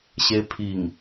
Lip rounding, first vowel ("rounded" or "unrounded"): unrounded